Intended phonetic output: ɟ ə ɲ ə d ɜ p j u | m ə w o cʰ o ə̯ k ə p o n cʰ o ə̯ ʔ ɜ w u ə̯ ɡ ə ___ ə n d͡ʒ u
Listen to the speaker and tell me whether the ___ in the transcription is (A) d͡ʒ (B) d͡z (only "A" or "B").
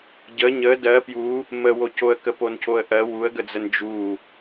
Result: B